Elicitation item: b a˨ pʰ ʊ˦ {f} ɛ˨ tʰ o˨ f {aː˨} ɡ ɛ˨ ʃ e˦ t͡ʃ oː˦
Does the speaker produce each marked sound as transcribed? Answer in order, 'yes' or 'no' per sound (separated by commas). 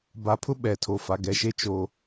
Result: no, no